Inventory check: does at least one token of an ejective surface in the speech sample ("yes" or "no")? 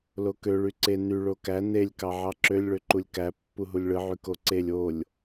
no